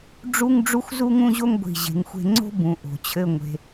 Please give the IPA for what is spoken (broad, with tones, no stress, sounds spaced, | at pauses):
ɖ͡ʐ u˥ ŋ ɖ͡ʐ u˥ xʷ z u˥ ŋ ũ˥ ʑ o˥ ŋ ɡʷ i̤˧˩ ʑ e̤˩˧ ŋ xʷ e̤˧ ŋ͡ǀ o̤˥ b ũ˩˧ ʔ o̤˩˧ t͡ɕʰ ɘ˥˧ ŋʷ e̤˧